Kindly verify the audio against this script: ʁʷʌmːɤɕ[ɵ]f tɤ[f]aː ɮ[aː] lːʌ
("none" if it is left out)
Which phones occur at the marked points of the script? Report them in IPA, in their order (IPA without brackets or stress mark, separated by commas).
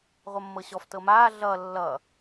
ɔ, m, ʌː